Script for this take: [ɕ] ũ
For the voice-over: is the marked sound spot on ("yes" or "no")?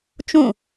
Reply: no